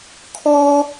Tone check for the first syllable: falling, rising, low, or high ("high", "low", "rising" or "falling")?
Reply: high